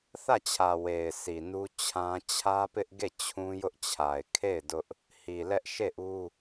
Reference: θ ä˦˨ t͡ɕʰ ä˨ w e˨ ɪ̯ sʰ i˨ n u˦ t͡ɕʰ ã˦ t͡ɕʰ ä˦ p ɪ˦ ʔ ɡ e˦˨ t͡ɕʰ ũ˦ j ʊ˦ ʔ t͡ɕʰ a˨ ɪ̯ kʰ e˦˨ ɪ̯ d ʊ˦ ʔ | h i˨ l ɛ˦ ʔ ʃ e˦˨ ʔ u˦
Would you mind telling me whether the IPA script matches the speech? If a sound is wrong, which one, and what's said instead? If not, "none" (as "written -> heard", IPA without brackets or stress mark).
none